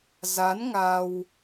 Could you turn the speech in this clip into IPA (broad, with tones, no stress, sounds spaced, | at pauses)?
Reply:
z a˨˦ n ŋ a˧ w